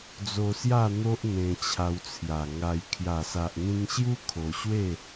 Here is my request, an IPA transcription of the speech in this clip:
d͡z o˧ s j a˥˧ n̪ o˦ ʔ n̪ ẽ˧ t͡ɕʰ a˧ w t͡sʰ j a˨˩ ŋ a˧ j kʰ j a˨˩ s a˨ ʔ ŋ ĩ˧ ŋ ɕ j u˦ kʰ o˧ ɕ w e˥˧

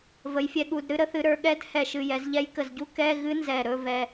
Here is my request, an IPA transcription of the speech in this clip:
v ə˩˧ j fʲ ɛ˧ ɠ u˩˧ d ɾ ɨ˧ ɾ ə˧˥ θ ɨ˩˧ ɾ ə˞˩˧ ɠ ɛ˧˥ d h ɛ˨˩ ʃ ɨ˨˩ j ɛ˩˧ z ʎ ɛ˧˥ j k ə˨˩ z ɟ u˧˥ k ɛ˧˥˧ ɣ ɨ˧˥ n z ɛ˨˩ ɾ ɵ˧˥˧ v ɛ˧

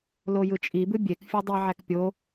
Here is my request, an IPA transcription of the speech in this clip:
l o j ɯ t͡ʃʼ i b ɯ bʲ e k fʲ u dˤ i ʕ æ k pʲ o

